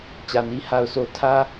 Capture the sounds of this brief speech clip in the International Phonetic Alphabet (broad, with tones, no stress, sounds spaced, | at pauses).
t͡ɕ ä˨ n i˦ h a˨ ʊ̯ s o˨ tʰ ä˦